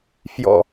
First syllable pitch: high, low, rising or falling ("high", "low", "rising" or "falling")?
low